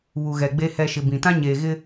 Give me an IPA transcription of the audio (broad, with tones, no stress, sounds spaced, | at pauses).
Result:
β u˨ ɣ ɛ˨ ɡ͡b e˨ h ɛ˨ ʃ ɪ˨ b ĩ˨ t ã˦ ɲ eː˨ ɣ ɪ˦